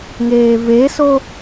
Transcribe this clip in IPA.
ŋ eː v e s o

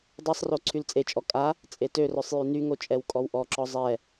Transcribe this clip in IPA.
dˤ ɛ sˤ r o ǀʰ y l t͡sʼ e t͡ʃʼ ɔ kʼ a | t͡sʼ e t ø r œ sˤ j y n y ŋ o t͡ʃʼ ɛ w kʼ ɔ w ʔ ɔ ǁ ɔ zˤ ɛ

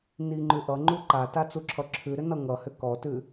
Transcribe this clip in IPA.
n i ŋ͡ǃ ʉ ʔ ʌ ŋ͡ǃ u ǃ a t a t͡s u ǁʰ ʌ ǁʰ ʉ ɾ ʏ n ʌ ŋ ʌ h ʏ k ɔ t ʉ

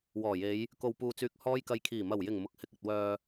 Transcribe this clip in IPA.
w ɔː˨˩ j e˨˧ j | k o˨ w p uː˨ t͡s yː˨ k̚ h ɔː˧ j k ɐ˨ j kʰ iː˨˩ m ɐ˨˩ w j ɪ˨˩ ŋ m ʊ˨˥ k̚ h ɪ˧ k̚ ɐ˨ t̚ w œː˨

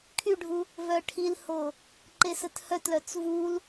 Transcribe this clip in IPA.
kʰ y ɖʱ u | v œ ʈʰ i l h o | ǃ e s ə t h œ t l œ t͡s v u l

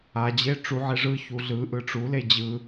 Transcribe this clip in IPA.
a d͡ʑ e ʈ͡ʂ u ʕ e ʐ ɯ ç u ɮ ɯ ʔ ɯ ʈ͡ʂ u l e d͡ʑ ɯ

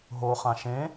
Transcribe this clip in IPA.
ɦ o χ ã ʃ ẽ

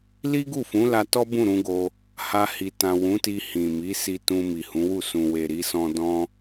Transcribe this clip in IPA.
l i˦ ɡ u˦˨ f ũ˨˦ l a˧ t ɔ˦ b ũ˦˨ ɾ ũ˧ ɡ o˧ | h a˧ h i˨ t ã˨ w ũ˨˦ t i˧ h ĩ˨ m i˨˦ s i˧ t ũ˧ m i˨ h ũ˨˦ w u˦˨ s ũ˨ w e˨ ɾ i˧ s ɔ̃˧ d ɔ̃˧

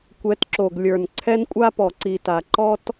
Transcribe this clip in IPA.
kʷ ɛ˨˦ t ǁ o˨ ɡ lʲ ə˞˨ n ǀʰ ɛ˦ n kʷʼ a˦ p ɔ˨ ǀ i˨ t a˨ ǃ ɔ˦ t

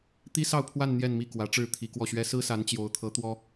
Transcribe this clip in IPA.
t̪ i˥ s ɑ˥˧ ʊ̯ pʰ w a˥˧ n n̪ j ɛ˥˧ n m i˥˩ k w ä˧˥ ʈ͡ʂ ɻ̩˥˩ t̪ʰ i˧˥ k w ɔ˥˩ ɕ ɥ ɛ˥ s ɹ̩˥ s a˧˥ n t͡ɕ j o˧˥ ʊ̯ t̪ʰ ɤ˧˥ t̪ w ɔ˥

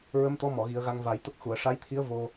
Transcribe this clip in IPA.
ɹ ə˧˥ m t̪ ɔ˧˥ m ɔ˨˩˨ ɣ i˨˩˦ ə̯ ɣ a˧ ŋ v a˨˩˦ j t̪ ə˦˥ k̚ x u˨˩˨ ə̯ ʂ a˧˥ j t̪ʰ i˧˥ ə̯ v o˧

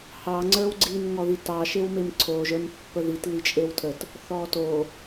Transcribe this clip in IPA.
h ɑ ŋ͡ǀ ə˞ w ɡ͡ǀ i n ŋ ɔ ð i t ɑ ʃ e w m e m ǀʰ o ʒ ə˞ m pː ə ð i t l i t͡ʃʼ e w tʰ ə t | θ ɔ t o

